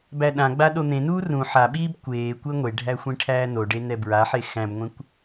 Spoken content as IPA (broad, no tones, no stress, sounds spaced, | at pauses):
b æ ɗ ã ɡ͡b a ɗ o n̪ ẽ n uː r ũ ħ a ɓ iː b kʷ eː kʷ e ŋʷ e ɖʱ æ xʷ ĩ ʈʰ æː n o ɖ e n ɛ b ɹ a ħ e x æ̃ b ŋʷ ẽ kʷ